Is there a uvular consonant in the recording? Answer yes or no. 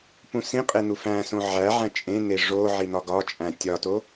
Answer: yes